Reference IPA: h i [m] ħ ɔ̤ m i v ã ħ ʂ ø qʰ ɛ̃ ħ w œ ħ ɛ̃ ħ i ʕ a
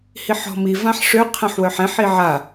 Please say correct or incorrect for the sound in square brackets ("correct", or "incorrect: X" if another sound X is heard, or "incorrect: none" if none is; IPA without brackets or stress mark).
incorrect: none